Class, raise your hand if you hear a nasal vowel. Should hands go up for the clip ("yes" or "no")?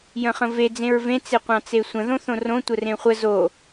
yes